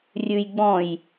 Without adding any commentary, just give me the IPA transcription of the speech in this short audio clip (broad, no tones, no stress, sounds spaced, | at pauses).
rʲ ʉ j ɡ͡b ɔ̃ j